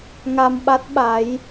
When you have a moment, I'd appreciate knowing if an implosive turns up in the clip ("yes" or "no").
yes